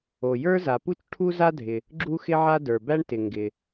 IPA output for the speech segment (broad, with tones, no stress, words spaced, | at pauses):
o˩jə˞˥za˩pu˥t͡ʃ ʈʰu˥za˥dʱɪ˩ | ɡ͡ǁu˥xɪ˥ʕa˥ də˞˩bæ˥ɳtɪ˩ ŋɡɪ˩